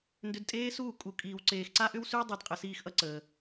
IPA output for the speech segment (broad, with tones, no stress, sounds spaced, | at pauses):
n d ʏ˧ d tʼ eː˦ s uː˦˨ kʼ u˨ kʼ iː˨ w ǀ eː˨ x ǀ a˦ ʔ ʏ˦ w s y˦ w dˤ e˧ d qʼ ə˨ s iː˦ x ʔ ʌ˦ ǀ əː˨